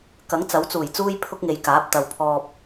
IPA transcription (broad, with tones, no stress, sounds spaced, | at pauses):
k ɐ˨˥ ŋ t͡s ɐ˨˥ w t͡s uː˨˩ j t͡s uː˥ j pʰ ʊ˥ k̚ ŋ e˨˧ j k aː˨˥ p̚ t̪ ɐ˨ w pʰ ɔː˧ p̚